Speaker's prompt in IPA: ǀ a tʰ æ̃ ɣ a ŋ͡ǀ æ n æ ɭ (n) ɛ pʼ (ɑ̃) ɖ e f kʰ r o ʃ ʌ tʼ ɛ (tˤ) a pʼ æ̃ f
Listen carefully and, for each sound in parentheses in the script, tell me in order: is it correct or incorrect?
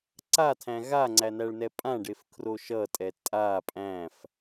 correct, incorrect, incorrect

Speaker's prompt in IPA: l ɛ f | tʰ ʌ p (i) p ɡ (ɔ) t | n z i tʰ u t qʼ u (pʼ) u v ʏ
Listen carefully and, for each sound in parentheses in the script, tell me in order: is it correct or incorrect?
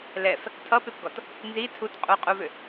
incorrect, correct, incorrect

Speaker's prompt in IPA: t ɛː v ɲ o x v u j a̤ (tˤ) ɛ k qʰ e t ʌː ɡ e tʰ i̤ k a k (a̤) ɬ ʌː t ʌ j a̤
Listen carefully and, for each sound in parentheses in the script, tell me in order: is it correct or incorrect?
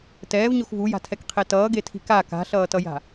incorrect, correct

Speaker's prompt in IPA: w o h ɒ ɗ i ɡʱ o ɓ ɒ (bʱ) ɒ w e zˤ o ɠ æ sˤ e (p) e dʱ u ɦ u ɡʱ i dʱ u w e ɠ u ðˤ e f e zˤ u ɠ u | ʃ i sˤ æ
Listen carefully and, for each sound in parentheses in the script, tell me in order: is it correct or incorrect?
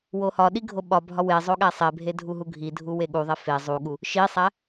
correct, incorrect

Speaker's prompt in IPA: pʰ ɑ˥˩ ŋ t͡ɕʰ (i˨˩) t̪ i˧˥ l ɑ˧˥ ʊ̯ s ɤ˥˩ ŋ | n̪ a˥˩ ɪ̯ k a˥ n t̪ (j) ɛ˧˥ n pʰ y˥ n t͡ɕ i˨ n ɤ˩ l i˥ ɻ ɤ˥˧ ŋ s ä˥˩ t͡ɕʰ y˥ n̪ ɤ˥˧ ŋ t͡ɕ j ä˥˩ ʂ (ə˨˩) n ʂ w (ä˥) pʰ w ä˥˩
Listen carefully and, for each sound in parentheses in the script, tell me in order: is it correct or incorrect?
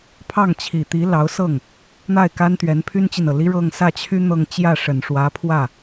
correct, incorrect, correct, incorrect

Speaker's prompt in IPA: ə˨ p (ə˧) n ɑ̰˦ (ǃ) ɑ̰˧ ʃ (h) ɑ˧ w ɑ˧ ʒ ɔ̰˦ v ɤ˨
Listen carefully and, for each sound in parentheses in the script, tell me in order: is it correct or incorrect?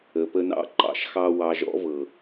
correct, correct, incorrect

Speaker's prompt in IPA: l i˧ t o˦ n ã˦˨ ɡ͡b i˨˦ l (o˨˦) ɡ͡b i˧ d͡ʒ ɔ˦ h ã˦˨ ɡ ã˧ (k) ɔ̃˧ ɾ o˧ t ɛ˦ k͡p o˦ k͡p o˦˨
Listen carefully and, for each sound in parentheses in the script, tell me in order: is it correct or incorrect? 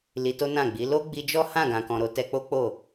incorrect, correct

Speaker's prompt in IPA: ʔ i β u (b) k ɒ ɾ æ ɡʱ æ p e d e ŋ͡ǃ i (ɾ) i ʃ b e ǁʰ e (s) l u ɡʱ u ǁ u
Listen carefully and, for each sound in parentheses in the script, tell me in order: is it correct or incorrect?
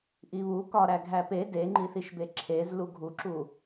incorrect, incorrect, incorrect

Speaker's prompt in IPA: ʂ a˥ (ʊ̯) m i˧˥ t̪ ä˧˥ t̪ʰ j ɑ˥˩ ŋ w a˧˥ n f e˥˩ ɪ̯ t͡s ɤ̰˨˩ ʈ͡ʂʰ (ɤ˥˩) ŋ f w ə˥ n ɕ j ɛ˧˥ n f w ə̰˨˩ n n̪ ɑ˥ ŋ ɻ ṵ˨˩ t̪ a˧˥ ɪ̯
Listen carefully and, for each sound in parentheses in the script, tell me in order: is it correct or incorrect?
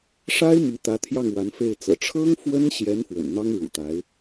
incorrect, incorrect

